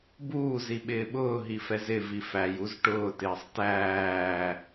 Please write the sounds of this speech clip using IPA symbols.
buːziɓɪː ɓʊːɦifɛz ɪvi fæjuz ʈʊːtɪːsˤ tæː

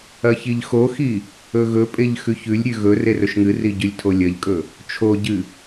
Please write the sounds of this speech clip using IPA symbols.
ɐçiʎxoxi | ɵɣɵpʼeʎ xʉçʉlʲɾʲʉ ɣɵ rerɵʃŋɨri ɟʉlʲtʰolʲɐʎkʼɵ | t͡ʃʰoɟɨ

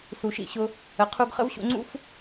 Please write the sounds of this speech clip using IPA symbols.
su˩ʃḭ˧ɕʊ˧ | ə˩qʰu˧ɡχə̰˥v ɕṵ˧ŋ͡ǀṵ˥f

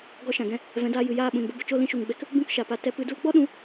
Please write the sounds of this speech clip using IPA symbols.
ɡɔ˧ʃã˨ɡɛ̃˧ | vɛ̃˨˦daː˧ jɨ˨jaː˦˨ɓũ˨nbə˧ bə˨t͡ʃo˦˨ lĩ˧ʃu˨ŋɡ͡bɛ˧k | bũ˦kʃa˨pa˧ tɛ˧pɨ˧du˦l ɡ͡bɔ˦ɗũ˨˦

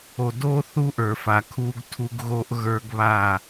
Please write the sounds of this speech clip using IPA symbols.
o˨do˦ θu˦ʔə˞˨fa˨ kʰu˦ɡtʰu˦ɡɣo˦ʔ ɣə˞˦ɡβa˦˨

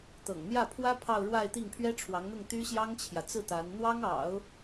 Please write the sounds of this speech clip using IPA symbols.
t̪ɤ̰˨˩ŋn̪jä˥˩pʰwä˥ pʰɑ˥˧ʊ̯ɻwa˥˧ɪ̯t̪i˥˩ŋ pʰɥɛ˥ʈ͡ʂʰwɑ˧˥ŋn̪ʊ˥˩ŋ t̪y˥ɕjɑ˥ŋt͡ɕʰjä˨ t͡sɹ̩˥˩ t̪a˧˥n n̪wɑ˥ŋɑ̰˨˩˦ʊ̯

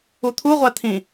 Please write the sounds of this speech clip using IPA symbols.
ut̪ʰuʁʷæ t̪ʰĩ

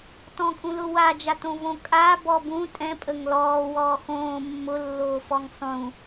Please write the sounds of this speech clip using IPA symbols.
tɔ̃kʼũlʊwa d͡ʒatõvõ kʼa bɔbũ tʼɛ̃ pʼəŋlɔː wɔːxõː mːʊ lːoːfɔŋsˤũ

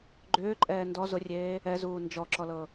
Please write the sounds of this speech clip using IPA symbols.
ɡ͡ǃʏːǃʼɛː ndɔ zʊrʲeː | ɛzuː nd͡ʒɔǁɔlɤ

